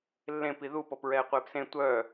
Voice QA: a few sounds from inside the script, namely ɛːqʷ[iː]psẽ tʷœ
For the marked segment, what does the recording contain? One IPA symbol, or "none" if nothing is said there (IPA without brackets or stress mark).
eː